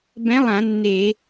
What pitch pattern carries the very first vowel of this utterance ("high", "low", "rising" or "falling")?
rising